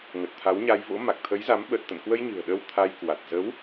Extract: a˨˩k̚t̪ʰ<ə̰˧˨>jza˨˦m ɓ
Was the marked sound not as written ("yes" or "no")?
yes